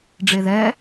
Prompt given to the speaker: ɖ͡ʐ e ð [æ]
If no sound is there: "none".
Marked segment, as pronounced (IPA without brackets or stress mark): ɛ